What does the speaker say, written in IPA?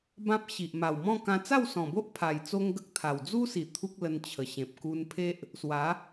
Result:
b ã˦ p̚ ɕ i˨ ʔ m a˨˩ w m ɔ̃˥˧ k ã˧ t͡s a˥˧ w s ɔ̃˨˩ b o˦ ʔ pʰ a˨˩ j t͡s o˦ ŋ ɡ ə˦ k̚ t̪ʰ a˨˩ w d͡z u˦ s i˨˩ t̪ʰ u˦ k̚ l ə˧ n t͡ɕʰ ə˨˩ ɕ ẽ˨ p̚ k u˧ n pʰ e˦ ʔ | s w a˨˦

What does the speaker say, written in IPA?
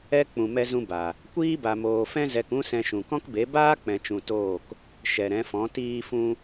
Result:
ɛ˦ k͡p ũ˧ m ɛ˦ z ũ˦ b a˨ | kʷ iː˦ b a˨ m oː˨ f ɛ̃˦ z ɛ˧ k ũ˦ s ɛ̃˧ ʃ ũ˨ k ɔ̃˦ k b e˨˦ b aː˦ k͡p ɛ̃˨ t͡ʃ ũ˨ t oː˦˨ k | ʃ ɛ˨ ɾ ɛ̃˨˦ f ɔ̃˨˦ t iː˧ f ũ˧

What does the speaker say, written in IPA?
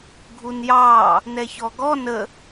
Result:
ɡʱ u n j ɑː | n ɛ ç ɔ ɡ ɔ n ə

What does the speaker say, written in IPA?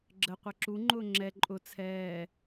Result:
ɡ͡ǁ ə qʷ ɛ ǁ u ŋ͡ǃ ʊː ŋ͡ǁ ɛ ǃʼ ʊ t͡sʰ ɛː

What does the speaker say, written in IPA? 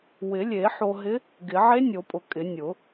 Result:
w ɪ˨˩˦ lʲ e˨˩˦ ħ o˧ ɦ ɪ˧˥ | ɡ ɪ˨˩˦ ʕ e˧˥ nʲ o˨˩˦ pʼ ʊ˨˩˦ kʼ ɪ˨˩˦ nʲ ʊ˨˩˦

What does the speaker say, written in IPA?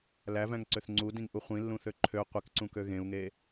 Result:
l æ v æ̃ ŋ ǀ ø θ ŋ͡ǀ u d ĩ ŋ ʔ u χʷ ĩ lː ũ θ ø ǃʰ ø qʷ i k ǀ ũ k ø ɣ ẽ u̯ ŋ e

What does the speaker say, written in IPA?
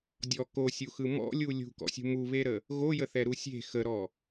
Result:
dʲ ɔ k o sʲ u x ɯ m ɔ̰ lʲ u lʲ ṳ k ɔ̰ sʲ ṳ m u β e ɾ ə | ɣ o j ə θ ɛ ɾ u sʲ e̤ x ə ɾ ɔ

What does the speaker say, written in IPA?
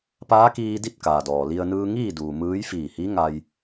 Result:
p aː˧˥ k iː˧ d i˥˨ t̚ k aː˩ d ɔː˩ l i˧ ə̯ n ɯː˧ ŋ iː˥˨ d uː˩ m ɯː˧˥ j f iː˧˩ h i˧˥ ŋ a˧ j

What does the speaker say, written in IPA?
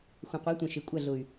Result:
xʷ ɐ̃˨ qʷ a˨˦ tʷ ɐ̃˨ ʃ e˨ kʷʼ ɐ˦˨ ɮ ʊ˨ y̯

